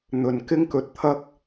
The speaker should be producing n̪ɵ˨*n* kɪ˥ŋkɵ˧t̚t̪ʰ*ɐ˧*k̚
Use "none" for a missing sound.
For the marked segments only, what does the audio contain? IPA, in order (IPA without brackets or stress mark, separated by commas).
n, ɐ˥